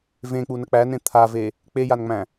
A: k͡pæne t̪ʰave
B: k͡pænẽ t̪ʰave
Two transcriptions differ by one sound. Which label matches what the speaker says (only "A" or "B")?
B